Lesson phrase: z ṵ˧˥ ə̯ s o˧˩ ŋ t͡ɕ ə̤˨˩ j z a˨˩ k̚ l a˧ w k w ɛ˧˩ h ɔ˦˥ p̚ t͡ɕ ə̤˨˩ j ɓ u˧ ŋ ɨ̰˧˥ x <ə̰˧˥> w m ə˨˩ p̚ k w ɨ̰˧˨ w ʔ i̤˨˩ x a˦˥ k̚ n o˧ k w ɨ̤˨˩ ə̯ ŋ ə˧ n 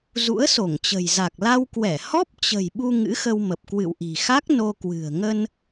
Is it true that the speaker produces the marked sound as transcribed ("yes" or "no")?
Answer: no